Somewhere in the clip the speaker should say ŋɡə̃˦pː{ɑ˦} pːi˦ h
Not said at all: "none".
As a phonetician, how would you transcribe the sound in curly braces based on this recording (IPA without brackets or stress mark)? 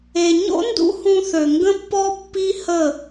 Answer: ɔ˦